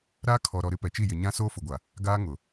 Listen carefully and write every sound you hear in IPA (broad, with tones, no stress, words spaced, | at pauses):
ɾaː˦kʰɔ˨ɾɔ˨ɾɪ˦ pɛ˨t͡ʃi˦˨ jɪ˨ɲã˦ soː˦fʊ˨ɡʷa˨ | ɡaː˦ ŋʊ˨